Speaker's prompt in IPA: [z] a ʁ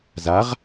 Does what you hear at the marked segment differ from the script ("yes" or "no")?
no